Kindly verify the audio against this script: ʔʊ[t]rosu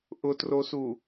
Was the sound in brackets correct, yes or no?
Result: yes